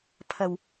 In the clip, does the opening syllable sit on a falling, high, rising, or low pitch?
low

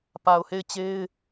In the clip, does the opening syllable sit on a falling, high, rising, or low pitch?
low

